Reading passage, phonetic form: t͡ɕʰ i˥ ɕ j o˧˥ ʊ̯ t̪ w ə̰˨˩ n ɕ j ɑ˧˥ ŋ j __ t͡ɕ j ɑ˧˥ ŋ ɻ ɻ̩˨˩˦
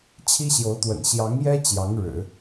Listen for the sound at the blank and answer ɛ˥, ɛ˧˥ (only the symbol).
ɛ˥